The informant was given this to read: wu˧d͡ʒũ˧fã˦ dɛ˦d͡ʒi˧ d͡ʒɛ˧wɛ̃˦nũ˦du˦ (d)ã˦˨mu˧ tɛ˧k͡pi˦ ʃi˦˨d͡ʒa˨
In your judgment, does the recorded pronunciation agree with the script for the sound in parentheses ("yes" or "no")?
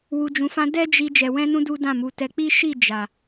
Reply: yes